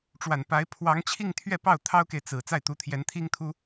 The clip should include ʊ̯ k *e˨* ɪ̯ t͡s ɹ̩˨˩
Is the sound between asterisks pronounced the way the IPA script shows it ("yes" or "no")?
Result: yes